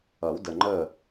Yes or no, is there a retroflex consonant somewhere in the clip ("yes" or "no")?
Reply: no